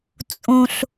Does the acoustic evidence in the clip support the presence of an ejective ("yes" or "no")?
yes